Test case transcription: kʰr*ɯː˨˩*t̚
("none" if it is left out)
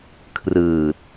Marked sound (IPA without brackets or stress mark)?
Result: ɯː˨˩